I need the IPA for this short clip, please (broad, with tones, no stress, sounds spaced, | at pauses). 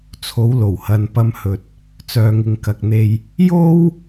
t͡sʰ o˨˧ w l o˨˩ w h ɐ˨ n p ɐ˧ m h ɵ˨ t̚ | t͡s œː˨ ŋ ɪ˨ ŋ k ɐ˨ k̚ n̪ e˧ j | j o˥ w